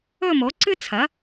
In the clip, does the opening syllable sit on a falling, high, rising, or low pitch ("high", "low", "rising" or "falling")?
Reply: falling